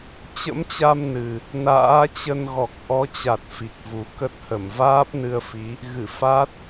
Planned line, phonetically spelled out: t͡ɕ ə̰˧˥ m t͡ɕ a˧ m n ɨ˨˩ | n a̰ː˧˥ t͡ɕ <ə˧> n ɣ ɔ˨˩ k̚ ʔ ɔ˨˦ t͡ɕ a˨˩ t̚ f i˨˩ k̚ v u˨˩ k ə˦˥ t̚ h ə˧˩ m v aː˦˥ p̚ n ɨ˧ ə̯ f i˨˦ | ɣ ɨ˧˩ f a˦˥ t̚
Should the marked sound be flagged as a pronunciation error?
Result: no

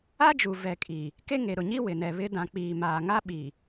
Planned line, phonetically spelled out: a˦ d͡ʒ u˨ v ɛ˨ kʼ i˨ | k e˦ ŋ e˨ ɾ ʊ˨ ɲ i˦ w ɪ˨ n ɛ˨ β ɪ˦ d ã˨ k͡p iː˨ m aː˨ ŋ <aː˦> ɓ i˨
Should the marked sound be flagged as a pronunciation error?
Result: yes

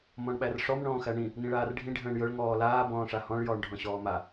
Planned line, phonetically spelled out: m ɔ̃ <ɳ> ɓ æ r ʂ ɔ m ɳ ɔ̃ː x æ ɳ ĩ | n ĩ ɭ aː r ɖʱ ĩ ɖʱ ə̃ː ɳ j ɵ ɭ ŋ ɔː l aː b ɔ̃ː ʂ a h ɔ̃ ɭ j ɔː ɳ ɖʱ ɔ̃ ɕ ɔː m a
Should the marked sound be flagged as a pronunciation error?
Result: no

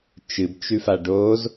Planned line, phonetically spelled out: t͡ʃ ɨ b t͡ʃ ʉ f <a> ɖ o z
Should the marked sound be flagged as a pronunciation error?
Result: no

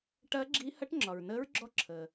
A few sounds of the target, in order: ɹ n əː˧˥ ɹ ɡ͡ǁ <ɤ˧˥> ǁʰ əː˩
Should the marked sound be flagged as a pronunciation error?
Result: yes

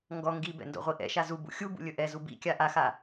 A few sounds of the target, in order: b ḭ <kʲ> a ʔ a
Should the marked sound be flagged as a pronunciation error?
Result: no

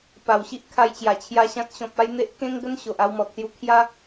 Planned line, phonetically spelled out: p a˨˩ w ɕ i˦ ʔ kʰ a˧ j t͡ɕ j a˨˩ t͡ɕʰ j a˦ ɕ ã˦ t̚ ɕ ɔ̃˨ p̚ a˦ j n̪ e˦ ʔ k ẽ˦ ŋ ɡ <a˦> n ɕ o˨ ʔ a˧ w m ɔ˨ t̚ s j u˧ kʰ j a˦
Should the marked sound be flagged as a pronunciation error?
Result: yes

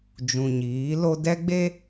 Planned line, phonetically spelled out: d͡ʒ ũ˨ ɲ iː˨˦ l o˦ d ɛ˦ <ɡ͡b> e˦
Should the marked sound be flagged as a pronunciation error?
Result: no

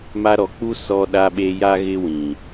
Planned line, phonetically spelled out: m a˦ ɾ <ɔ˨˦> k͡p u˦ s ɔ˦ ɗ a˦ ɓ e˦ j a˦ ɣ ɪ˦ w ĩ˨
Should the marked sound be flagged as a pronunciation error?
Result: no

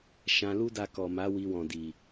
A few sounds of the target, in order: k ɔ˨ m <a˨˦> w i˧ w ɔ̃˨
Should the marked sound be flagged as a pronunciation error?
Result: no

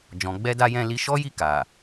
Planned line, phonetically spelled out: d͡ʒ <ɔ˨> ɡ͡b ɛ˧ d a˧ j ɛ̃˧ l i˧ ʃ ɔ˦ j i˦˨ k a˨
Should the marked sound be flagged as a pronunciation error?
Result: yes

